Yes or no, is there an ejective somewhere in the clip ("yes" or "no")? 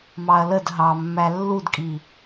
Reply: yes